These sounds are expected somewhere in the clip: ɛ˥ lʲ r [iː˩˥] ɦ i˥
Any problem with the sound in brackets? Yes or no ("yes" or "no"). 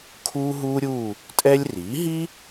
no